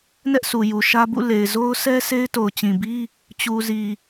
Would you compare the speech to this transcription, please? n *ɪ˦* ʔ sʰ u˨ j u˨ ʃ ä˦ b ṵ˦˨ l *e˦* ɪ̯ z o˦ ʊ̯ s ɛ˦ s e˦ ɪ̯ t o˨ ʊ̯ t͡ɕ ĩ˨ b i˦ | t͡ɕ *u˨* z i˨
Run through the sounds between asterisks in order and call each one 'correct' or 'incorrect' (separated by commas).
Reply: incorrect, incorrect, correct